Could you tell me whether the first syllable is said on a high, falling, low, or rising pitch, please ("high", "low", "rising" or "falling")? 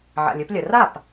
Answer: low